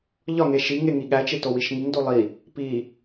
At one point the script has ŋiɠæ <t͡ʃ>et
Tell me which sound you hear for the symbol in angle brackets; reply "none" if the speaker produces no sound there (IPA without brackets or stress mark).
t͡ʃ